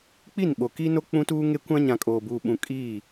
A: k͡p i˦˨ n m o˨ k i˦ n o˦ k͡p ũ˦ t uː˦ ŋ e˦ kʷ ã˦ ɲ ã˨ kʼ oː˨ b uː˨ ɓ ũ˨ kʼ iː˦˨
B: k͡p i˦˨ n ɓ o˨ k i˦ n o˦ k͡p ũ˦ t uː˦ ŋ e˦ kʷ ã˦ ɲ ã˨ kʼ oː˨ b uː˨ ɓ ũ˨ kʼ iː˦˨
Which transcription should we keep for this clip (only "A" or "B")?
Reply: B